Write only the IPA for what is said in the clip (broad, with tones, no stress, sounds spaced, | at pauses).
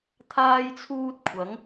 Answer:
t̪ʰ aː˥ j t͡sʰ uː˥ t̚ kʷʰ ɐ˨˥ ŋ